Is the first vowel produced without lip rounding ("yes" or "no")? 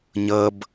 yes